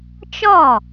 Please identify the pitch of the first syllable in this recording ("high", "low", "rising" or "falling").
falling